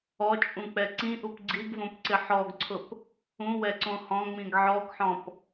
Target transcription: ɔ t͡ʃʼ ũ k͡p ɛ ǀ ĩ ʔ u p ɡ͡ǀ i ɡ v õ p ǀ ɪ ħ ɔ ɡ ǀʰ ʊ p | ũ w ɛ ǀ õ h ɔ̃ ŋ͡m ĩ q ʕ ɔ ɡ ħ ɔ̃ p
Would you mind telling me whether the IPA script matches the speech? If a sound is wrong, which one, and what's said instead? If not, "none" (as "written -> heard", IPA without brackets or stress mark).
q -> ɡ